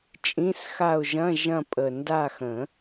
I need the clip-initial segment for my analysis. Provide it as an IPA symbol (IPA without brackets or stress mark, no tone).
t͡ʃʼ